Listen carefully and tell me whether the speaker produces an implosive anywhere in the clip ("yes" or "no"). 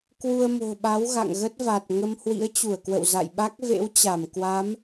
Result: yes